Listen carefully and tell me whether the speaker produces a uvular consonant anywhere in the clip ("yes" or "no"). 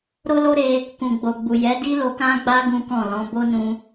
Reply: no